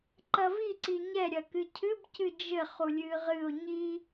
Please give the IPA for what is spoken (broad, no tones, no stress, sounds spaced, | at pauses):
ǃ ɐ v i ǀ i ɲ ɛ ɾʲ ɐ k ɨ cʰ ɨ b c ɨ d͡ʒ ɘ χ u lʲ ɨ ʁ ɨ ʊ̯ ɲ i